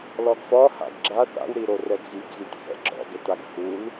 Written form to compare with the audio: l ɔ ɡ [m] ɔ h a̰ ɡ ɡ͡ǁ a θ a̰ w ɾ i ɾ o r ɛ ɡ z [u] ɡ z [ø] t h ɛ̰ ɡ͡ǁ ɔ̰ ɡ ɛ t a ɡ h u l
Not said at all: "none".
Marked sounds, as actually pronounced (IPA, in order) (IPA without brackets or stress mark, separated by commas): f, y, y